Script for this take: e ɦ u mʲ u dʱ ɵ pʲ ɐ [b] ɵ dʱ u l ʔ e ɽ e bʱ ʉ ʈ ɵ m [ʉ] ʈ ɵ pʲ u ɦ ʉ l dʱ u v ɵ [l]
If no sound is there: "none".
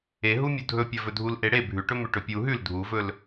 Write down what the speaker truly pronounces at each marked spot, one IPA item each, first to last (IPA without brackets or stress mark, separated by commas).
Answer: v, ʉ, l